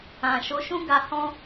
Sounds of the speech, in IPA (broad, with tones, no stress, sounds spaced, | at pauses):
ã˨ ʃ o˨˦ ʃ ũ˦ ɡ a˧ h ɔ̃˦